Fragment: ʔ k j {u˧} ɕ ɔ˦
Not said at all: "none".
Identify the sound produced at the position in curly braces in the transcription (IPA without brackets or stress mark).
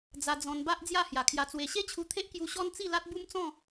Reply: u˧